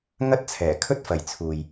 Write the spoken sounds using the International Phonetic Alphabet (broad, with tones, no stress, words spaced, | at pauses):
ŋɐ˥t̚t͡sʰɛː˨˩ kʰɵ˥t̚fɐ˨j t͡sʰuː˨j